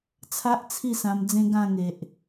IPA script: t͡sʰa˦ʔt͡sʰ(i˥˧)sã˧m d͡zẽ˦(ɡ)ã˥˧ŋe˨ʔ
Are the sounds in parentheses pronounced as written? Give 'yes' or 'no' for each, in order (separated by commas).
yes, yes